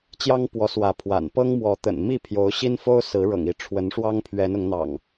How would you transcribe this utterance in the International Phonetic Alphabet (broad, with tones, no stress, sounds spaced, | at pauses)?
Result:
t͡ɕ j ɑ˦ ŋ p w ɔ˨˦ s w ä˨˦ pʰ w a̰˨˩ n p ɤ˦ ŋ m w ɔ˨˦ t̪ ə̰˨˩ n m i˥˨ pʰ j o˨˦ ʊ̯ ɕ i˦ n f o˦ ʊ̯ s ɹ̩˨˦ ɻ ɤ̰˨˩ ŋ i˨˦ ʈ͡ʂʰ w ə˨˦ n ʂ w ɑ˦ ŋ pʰ ɥ ɛ˨˦ n ʊ˨˦ ŋ n̪ ɑ̰˨˩ ŋ